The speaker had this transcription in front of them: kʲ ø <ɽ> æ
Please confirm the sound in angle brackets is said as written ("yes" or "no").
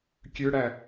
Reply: yes